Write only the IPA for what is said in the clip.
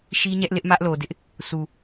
ʃi˦ɲɛ˦ʔlɪ˦ʔ mä˦ʔlo˨dɪ˦ʔ | su˨

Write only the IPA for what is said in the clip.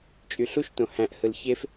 t͡ʃʼyɬuʃtõ hæ̃ʔhɯl çef

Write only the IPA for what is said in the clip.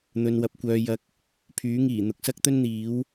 n̪ɵ˧nwɐ˧p̚kʷœː˧ jɐ˧k̚ | pʰyː˨˥ŋiː˨˩ n̪ʊ˨˥k̚sɐ˥k̚t̪ɵ˥n n̪iː˨˥w

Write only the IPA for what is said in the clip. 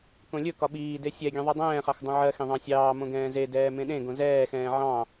kõlʲɵkɒ ɓiːde sʲɛ ɡʲɛ̃ðˤɜdˤɛ̃ːχɑx dˤõʕɜxẽ ðˤɑ̃sʲɑːmõ ɡɛ̃ːzedɛː mẽɗẽɡõ zɛːxɛ̃ː ʕɑ̃

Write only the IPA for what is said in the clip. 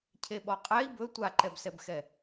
cʰeɓɔqʼɛi̯ bɵ tʷaǃɛbsɛbxɛ

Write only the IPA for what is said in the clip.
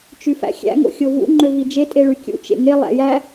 t͡ʃyfæ̰xʲæ̰ ŋo̰xʲovṵ ŋ͡ǃøvid͡ʒe tʼeɭykʲṵ t͡ʃḛŋe lˠæ̰jæ

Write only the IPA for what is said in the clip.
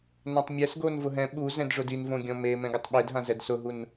nãtˤmʲɛs ɡonvʊɦɛ̃ ɓu zɛ̃dʐʊdinvõ ɡʲɔ̃me mɛ̃ɡʊtˤɓedɦã zɛdsʊɦun

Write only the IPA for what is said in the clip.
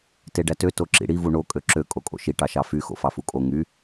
teɖætø toǁḭɽi vuɳo kʼøǁø kʼokʼo̰ʃi ʈɑʃɑfy xo̰fɑfukʼo ŋy

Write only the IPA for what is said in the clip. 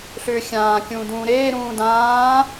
ɬʏːxʲãː kʲũːdũːɾeː ɾũːdãː

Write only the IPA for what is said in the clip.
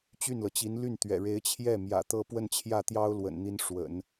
t͡ɕy˥˩nlɤ˩t͡ɕi˧˥n ly˥˩nt̪ɥɛ̰˨˩ɻe˧˥ɪ̯t͡ɕʰjɛ˥˩ mjä̰˨˩t̪ɤ˥˧pwə˥˧n t͡ɕʰjä˥˩t̪jɑ˥ʊ̯lwə̰˨˩nn̪i˧˥n ʂwə̰˨˩˦n

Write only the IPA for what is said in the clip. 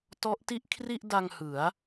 tɔ˦˥ʔti˥˩ʔ kʰri˥˩ʔda˧ŋ hɯ˩˦a̯

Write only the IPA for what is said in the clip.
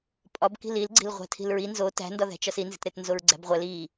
pʼɒbki̤l ilɡ͡ǀi̤l ʁʷæ̤tʰi̤lɹi nzo tæ̤ndɒðæ̤t͡ʃɒs inzi̤tɾetnzoɹ ɡ͡ǀæ̤bʁʷæl i

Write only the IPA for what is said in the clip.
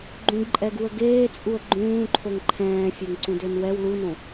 ɡ͡ǃũɡǃʼɛɡuə̯ ɡeːt͡sʼuə̯ ɡ͡ǃũːǃʰoŋ ǃʰɛ̃ːfʲɛŋǀũdøn wɛw lunõ

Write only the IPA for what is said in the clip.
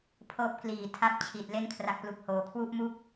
pʰɤː˦˥p̚kliː˨˩ tʰa˦˥p̚ t͡ɕʰi˨˩t̚ le˧nkʰra˨˩k̚plu˨˩k̚ hoː˩˦kʰwu˥˩ʔmu˥˩k̚

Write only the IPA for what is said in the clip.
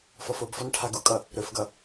fɔfobfɔn ʈʰaɡukʼʌ | ɾɵfɡʌ

